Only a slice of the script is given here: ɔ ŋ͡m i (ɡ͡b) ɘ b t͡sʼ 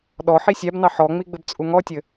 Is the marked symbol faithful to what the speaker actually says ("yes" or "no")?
yes